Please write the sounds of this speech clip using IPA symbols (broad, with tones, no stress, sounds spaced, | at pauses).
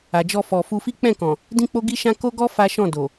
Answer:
a˨ d͡ʒ ɔ˧ f ɔ˨ f u˧ f i˦ k͡p ɛ̃˦˨ k ɔ̃˨ | d ĩ˦ k͡p o˦ ɡ i˦ ʃ ã˦ k o˦ ɡ ɔ˦ f a˦ ʃ ɔ̃˦˨ d o˨